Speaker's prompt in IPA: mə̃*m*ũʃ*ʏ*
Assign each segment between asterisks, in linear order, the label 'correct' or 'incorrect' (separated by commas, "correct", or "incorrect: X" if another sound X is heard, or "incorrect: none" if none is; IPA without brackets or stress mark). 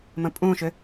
incorrect: pʼ, correct